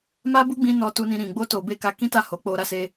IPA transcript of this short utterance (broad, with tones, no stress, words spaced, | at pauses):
ma˦bu˦ɡ͡bĩ˧ nɔ˧tu˧nĩ˧ɾĩ˨ ɡ͡bo˧to˨be˧ ka˧kĩ˦ta˦˨ ho˨˦k͡po˧ɾa˦se˦